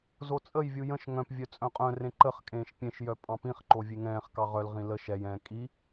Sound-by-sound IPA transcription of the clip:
z o t͡sʼ ə j vʲ u j ə̃ ʃ ŋ œ̃ p vʲ œ t͡sʼ œ̃ qʼ œ̃ r ẽ ǃ ə χ kʼ ẽː ʃ pʲ ẽ ʃ j œ pʼ ɑ̃ p ĩ χ ǃ o vʲ e ŋ ɛ̃ː χ k ɑ ʁ œ l ʁ ĩ l ə ʃ ɛ j ɛ̃ː kʼ i

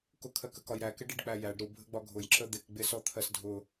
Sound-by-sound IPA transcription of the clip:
k ʊ kʰ ɜ k ə k ɒ j ɾ æ k ɪ ɖ i ɖ k͡p æ j æ ɖ ɾ u bʱ ə ɡ͡b ɒ ɡʱ ʊ j ǁ ə d̪ ɪ k ɡ͡b ɪ s ɔ t̪ʰ ɜ s dʱ ʊ

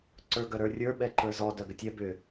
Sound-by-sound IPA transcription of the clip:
ǀ ə˞ ɡ œ ɾ ə˞ rʲ ə˞ ɓ ɛ ǃ ə˞ z ɔ d œ ɡ ʏ tʲ ɛ b ʏ

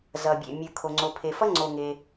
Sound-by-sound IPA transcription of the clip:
z ʌ˩ bʲ ḛ˩ mʲ ɯ˩ kʰ o˩ ŋ͡ǀ o˩ pʰ e˩ f ʌ˥ ŋ͡ǀ o˩ ŋ e˩

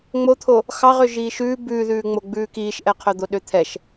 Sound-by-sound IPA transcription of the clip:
ŋ͡m o t̪ʰ o | x ɑ ʁ ø ʒ iː ʃ ʉː b ʉː ð ʉː ŋ͡m o ɡ͡b ʉː k iː ʃ ʔ ɛ qʰ œ d̪ o ɗ ø t̪ʰ ɛ ʃ

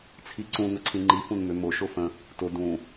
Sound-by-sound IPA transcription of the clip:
t͡sʰ i ǀ ũ n ə ǀʰ ĩ ŋ͡ǃ i f ũ n m ʏ m ʊ ʃ ʊ f ə̃ | t ʊ d ũ

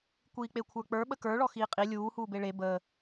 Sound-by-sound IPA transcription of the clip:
kʷ iː k͡p e kʷʰ ə˞ k͡p ə˞ ɓ ə k ə˞ ɭ ɔ x iː qʼ i lʲ uː h uː b e ɭ e b əː

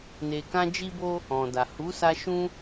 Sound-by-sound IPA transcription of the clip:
n e˧ k ã˦ d͡ʒ i˦ b o˦ | ɔ̃˨ d a˨ h u˨˦ s a˧ ʃ ũ˦

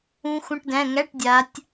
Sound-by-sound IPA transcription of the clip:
ũ˦˥ x ũ˧˥˧ ʈ d æ̃˧˥˧ ŋ æ˧˥˧ ʈ dʲ a˨˦ tʲ

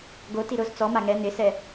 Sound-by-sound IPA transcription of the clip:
ɡ o t i ɾ ʊ z t͡s ɔ m a ŋ ɛ n ɪ s ɛ

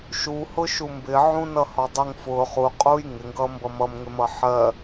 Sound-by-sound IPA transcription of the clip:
ʃ u h ʊ ʃ u m b ɪ ʕ ũ n ʌ h ɒ dˤ ʊ ŋ f ʊ χ u qʼ u j ŋ ɪ ŋ ɡ ʌ m b ʌ m ʌ m ŋ ɪ m ʌ ħ ɜ

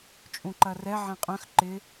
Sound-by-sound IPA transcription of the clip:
t͡ʃʼ ũ ǃ ɐ r ɛ ʕ ẽ qʼ œ̃ x ǃ ɪ

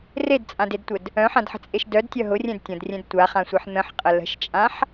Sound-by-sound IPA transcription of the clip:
r e d t͡sʼ ã d e d tʷ ə d | œ̃ ħ ã d ħ ə̤ t͡sʼ e ʃ d œ d tʲ œ ɦ ʊ rʲ ẽ d tʲ ə̃ d rʲ ẽ d tʷ a χ ã sʷ e ħ n̪ ə̃ ħ qʼ ə l ə̤ ʃ t͡ʃʼ ã ħ

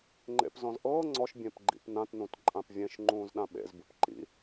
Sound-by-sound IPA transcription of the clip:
ŋ͡ǃ ḛ p z ɔ̃ z ʔ ɤː ŋ͡ǀ ɔ ʃ bʲ ẽ p ɡ͡ǃ ḭ p n ã t n ũ t ǃʼ ã p vʲ ẽ ʃ ŋ͡ǃ ũː z ɗ ã ɓ ḛ z b ɯ p ǃ ḭ

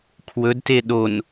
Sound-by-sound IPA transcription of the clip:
kʰ w ɵ d t e ɗ o n

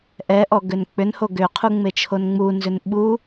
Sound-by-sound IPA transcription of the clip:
ʔ ɛ ʔ ɔ ɡ ʏ n k͡p ʏ n h o ɡ ʏ qʰ u ŋ͡m e t͡ʃʰ o n ŋ͡m u n z ʏ n ɓ u

